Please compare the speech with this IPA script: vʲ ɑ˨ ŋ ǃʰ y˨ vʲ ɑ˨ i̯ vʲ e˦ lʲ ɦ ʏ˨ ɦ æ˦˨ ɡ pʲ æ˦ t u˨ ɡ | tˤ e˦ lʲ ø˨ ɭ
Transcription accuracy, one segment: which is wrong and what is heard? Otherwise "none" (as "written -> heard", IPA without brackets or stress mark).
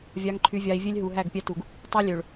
ʏ˨ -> u˨